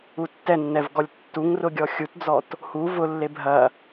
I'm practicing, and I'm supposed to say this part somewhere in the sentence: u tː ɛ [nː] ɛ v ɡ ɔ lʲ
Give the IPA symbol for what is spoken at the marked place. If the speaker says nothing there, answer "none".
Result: nː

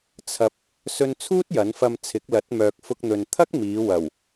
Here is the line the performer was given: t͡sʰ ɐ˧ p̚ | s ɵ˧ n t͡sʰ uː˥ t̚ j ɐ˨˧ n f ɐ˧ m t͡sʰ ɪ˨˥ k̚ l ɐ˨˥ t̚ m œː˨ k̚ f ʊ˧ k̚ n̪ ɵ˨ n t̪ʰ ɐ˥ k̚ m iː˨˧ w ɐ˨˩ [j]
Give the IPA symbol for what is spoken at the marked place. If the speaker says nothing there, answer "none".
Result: w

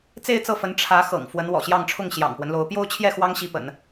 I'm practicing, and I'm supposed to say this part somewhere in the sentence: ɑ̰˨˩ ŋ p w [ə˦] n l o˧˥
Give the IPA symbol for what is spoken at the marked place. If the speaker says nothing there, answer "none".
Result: ə˦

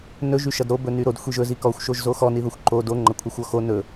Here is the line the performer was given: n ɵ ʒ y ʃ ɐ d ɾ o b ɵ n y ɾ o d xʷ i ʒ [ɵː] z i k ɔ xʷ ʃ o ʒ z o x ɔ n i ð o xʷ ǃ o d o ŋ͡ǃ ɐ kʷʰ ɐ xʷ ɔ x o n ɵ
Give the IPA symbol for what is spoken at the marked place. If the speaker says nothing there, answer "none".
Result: ɵ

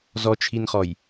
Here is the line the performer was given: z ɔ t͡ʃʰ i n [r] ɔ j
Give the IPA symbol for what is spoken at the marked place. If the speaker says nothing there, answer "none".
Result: χ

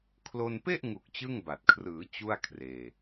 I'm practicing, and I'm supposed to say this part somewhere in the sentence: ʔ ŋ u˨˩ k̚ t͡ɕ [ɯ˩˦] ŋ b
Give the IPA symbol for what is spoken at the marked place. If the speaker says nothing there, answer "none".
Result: ɯ˥˩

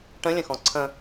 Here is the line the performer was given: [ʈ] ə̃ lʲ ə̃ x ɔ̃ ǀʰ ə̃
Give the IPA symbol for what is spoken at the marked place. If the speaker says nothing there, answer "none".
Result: ʈ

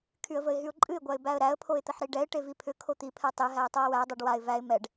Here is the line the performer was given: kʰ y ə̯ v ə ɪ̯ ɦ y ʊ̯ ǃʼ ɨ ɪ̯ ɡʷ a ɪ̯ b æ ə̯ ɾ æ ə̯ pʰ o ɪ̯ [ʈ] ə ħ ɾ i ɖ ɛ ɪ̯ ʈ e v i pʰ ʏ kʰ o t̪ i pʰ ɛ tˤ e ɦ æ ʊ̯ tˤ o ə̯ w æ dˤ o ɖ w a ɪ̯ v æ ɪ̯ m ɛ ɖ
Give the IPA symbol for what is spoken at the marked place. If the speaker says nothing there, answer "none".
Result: t̪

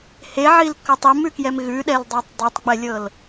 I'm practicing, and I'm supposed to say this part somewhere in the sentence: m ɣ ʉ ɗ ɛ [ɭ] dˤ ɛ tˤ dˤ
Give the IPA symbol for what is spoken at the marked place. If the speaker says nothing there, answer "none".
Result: l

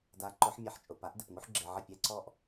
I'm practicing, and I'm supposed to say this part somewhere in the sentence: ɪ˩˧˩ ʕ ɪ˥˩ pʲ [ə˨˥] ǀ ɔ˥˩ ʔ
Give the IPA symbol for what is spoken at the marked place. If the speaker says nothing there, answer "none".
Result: ɛ˨˥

